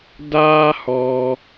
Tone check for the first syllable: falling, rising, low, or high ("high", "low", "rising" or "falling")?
high